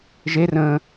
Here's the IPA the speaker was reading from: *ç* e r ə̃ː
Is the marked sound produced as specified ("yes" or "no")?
no